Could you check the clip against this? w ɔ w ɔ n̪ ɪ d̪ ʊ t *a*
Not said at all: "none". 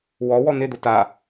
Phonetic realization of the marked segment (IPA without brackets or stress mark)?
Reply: a